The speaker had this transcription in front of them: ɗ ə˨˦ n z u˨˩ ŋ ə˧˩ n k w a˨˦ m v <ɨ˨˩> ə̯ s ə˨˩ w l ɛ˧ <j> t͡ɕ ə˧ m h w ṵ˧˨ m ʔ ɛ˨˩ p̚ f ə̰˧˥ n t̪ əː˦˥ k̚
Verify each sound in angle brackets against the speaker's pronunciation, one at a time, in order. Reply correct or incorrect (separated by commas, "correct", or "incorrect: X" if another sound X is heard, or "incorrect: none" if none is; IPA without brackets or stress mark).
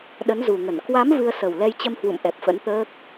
incorrect: ɨ˧, correct